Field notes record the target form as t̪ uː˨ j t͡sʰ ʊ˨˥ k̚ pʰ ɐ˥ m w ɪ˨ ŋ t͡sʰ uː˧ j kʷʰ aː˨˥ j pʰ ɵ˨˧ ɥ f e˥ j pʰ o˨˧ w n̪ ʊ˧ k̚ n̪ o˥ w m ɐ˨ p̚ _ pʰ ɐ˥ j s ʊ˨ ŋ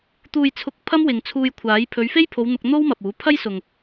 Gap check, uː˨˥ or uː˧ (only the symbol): uː˨˥